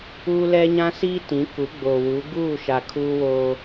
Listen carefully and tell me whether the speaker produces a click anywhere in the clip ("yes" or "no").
no